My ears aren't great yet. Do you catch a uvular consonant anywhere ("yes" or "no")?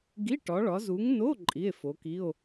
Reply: no